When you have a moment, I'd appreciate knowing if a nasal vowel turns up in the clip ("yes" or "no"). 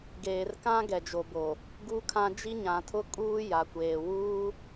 yes